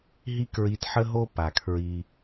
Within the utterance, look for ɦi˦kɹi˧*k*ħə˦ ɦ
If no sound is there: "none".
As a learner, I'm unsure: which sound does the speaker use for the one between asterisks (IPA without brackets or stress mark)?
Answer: t